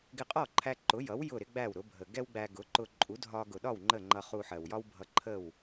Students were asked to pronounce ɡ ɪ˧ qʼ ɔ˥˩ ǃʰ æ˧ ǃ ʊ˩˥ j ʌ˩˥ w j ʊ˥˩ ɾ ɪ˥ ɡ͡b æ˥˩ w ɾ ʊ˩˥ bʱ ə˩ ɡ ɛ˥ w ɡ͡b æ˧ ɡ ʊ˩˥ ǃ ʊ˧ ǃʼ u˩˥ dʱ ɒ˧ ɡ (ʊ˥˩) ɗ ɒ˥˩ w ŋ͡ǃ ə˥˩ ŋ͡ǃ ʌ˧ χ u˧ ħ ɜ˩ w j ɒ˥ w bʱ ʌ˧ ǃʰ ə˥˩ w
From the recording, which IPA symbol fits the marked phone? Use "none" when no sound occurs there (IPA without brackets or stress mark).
ʊ˩